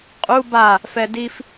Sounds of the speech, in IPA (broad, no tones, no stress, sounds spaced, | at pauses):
qʼ u b a | f ɛ d i f